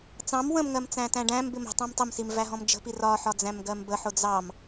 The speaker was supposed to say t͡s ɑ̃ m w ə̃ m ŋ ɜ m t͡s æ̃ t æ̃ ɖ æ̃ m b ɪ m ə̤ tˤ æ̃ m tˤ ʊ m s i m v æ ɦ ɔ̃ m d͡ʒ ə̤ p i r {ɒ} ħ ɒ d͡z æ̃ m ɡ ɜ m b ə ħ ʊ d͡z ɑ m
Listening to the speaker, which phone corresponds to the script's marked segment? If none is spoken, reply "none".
ɒ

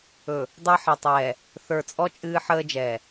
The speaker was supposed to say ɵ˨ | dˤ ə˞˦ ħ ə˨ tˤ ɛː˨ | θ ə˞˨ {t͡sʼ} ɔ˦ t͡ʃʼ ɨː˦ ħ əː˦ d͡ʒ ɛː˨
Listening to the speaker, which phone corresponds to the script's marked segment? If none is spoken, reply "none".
t͡sʼ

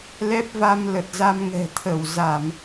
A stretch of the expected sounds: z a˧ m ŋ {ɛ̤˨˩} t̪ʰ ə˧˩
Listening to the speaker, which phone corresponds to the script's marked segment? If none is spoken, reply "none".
ɛ̤˨˩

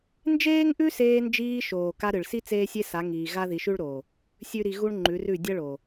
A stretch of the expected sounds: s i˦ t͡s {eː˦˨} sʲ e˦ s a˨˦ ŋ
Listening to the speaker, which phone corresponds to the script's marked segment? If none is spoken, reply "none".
eː˦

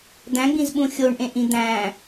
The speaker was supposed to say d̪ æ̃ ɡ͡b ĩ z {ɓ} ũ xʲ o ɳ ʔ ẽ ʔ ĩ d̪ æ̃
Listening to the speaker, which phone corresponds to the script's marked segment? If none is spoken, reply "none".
ɓ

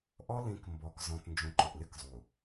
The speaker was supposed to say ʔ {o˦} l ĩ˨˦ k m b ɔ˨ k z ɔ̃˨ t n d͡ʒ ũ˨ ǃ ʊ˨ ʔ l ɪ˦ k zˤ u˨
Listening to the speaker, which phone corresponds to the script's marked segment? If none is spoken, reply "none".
ɔ˦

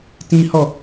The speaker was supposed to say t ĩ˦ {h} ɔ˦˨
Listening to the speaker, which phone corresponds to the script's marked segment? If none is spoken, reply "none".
h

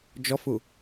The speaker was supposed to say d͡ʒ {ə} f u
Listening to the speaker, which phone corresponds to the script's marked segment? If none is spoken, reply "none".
ɔ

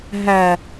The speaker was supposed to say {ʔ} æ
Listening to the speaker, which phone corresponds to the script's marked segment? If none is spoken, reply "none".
ɦ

